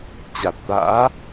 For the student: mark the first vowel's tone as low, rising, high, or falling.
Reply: low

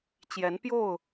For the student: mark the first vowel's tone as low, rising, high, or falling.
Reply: rising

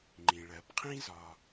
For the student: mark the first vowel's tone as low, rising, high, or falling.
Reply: low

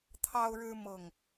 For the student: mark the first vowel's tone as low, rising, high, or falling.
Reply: high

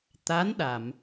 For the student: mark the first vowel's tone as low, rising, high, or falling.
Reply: rising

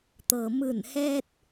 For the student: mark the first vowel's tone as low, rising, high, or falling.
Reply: low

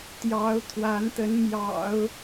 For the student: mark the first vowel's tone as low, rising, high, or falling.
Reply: rising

